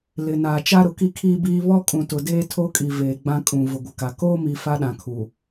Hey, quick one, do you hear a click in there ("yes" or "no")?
no